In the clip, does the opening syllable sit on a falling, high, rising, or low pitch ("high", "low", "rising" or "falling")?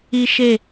high